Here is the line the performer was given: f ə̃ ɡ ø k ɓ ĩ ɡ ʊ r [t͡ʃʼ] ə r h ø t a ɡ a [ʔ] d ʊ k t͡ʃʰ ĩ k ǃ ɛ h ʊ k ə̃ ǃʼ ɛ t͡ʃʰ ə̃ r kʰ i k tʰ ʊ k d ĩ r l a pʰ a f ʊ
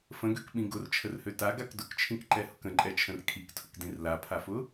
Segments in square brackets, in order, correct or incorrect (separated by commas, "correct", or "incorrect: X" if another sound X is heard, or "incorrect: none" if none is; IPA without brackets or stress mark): incorrect: t͡ʃʰ, incorrect: k